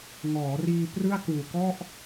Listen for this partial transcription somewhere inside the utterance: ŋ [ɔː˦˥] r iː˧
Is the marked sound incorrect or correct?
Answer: incorrect